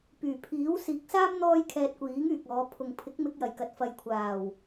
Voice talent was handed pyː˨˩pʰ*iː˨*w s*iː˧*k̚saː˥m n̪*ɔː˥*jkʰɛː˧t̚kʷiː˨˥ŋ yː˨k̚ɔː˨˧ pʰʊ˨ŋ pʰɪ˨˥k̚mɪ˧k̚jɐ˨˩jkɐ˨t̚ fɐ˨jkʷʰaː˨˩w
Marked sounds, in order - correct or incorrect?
incorrect: iː˨˥, incorrect: iː˨˥, correct

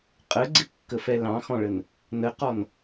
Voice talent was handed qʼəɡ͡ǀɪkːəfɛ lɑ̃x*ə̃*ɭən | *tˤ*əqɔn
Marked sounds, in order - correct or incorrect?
incorrect: ɔ̃, incorrect: n

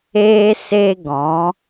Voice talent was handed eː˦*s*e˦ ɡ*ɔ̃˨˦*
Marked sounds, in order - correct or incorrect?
correct, correct

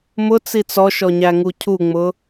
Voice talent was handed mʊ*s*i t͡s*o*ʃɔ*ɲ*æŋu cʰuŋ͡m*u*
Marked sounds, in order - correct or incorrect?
incorrect: t͡s, incorrect: ɔ, correct, incorrect: ʊ

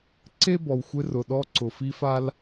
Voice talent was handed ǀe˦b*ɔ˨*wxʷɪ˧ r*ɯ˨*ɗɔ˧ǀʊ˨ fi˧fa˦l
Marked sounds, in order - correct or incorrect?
correct, incorrect: ʊ˨

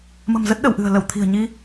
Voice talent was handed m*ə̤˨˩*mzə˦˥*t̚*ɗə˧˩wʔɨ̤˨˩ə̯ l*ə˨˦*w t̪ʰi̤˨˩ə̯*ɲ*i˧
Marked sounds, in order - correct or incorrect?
correct, correct, incorrect: ə˧˩, correct

